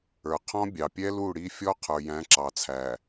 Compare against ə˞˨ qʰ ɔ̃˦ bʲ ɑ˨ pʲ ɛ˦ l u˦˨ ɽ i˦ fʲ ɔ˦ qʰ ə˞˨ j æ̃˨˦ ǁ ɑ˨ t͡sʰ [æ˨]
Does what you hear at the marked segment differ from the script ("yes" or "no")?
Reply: no